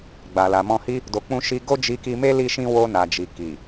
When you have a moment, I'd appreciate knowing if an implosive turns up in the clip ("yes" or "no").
no